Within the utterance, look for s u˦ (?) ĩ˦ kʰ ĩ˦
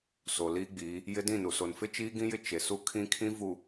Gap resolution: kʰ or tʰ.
kʰ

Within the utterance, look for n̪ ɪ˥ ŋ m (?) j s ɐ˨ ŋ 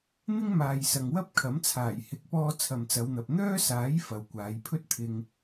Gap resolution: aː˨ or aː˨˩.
aː˨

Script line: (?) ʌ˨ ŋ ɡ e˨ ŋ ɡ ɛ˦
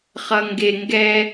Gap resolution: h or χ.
χ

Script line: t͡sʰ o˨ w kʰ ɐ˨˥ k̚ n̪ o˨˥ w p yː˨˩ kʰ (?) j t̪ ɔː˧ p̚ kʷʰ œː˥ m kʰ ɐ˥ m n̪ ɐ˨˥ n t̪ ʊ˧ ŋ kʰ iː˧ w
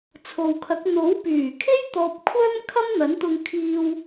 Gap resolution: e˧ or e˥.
e˥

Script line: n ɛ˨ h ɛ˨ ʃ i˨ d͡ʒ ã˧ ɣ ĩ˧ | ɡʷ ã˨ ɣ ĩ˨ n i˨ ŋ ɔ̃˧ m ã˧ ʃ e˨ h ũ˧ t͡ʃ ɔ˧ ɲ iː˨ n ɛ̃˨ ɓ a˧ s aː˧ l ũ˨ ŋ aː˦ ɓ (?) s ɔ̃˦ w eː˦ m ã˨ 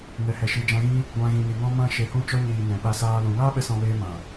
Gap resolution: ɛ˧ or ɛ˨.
ɛ˧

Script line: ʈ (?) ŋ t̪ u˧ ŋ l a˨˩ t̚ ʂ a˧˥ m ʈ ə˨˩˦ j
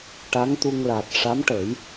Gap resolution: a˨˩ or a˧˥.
a˧˥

